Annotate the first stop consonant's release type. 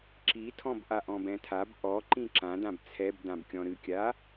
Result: click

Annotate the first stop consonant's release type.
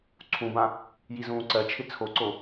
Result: click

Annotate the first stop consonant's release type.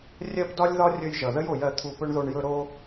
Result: plain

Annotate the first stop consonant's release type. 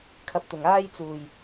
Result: aspirated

